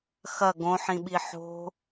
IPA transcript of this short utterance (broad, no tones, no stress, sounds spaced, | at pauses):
x ɐ ɡ õ ħ ĩ ɓ i ħ o̤